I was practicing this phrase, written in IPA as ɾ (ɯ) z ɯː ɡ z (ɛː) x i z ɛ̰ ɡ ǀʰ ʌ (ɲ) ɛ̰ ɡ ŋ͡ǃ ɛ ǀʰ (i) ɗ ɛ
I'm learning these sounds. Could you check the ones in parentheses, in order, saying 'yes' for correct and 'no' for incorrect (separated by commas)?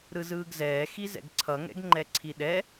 yes, yes, no, yes